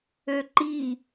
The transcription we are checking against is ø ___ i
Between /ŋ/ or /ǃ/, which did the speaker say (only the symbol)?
ǃ